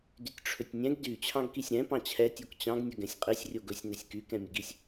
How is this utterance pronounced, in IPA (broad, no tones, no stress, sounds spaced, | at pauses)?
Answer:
d y tʲ ʈ͡ʂʰ ɵ tʲ nʲ ɛ̃ ɡ d y t͡ɕʰ ɑ̃ ɡ k i sʲ ɾ ɛ̃ p ɑ̃ t͡ɕʰ ɛ tʲ o k t͡ɕ ɑ̃ ɡ nʲ ɵ ɡ ɛ̃ sʲ qʼ i sʲ rʲ o ɡ ɵ sʲ n ɛ sʲ k y k ɛ̃ mʲ ə ɡ i sʲ